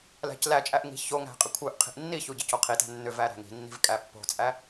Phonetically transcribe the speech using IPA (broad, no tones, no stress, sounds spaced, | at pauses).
l æ̤ c l æ t͡ʃʼ æ ʔ ŋ i̤ ç o ŋ æ̤ qʼ ɪ kʷʰ œ ʔ qʰ i̤ ʔ nː i ç u ɟ ɪ c o qʰ i t æ̤ nː ʏ v æ ɾ æ̤ ŋ i̤ nː i̤ v kʼ æ pː o̤ t͡sʼ æ